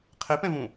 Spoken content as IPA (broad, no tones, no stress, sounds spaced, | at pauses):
qʰ e p ɛ̃ v ũ